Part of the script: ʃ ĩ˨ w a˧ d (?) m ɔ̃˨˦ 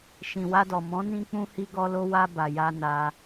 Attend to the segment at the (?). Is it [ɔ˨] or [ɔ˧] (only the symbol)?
ɔ˨